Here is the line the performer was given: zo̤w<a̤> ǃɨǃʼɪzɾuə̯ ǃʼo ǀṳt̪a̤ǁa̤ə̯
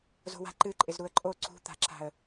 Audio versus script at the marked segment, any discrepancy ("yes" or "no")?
no